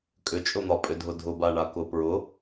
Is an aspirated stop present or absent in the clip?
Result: absent